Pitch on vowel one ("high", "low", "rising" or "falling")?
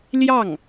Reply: falling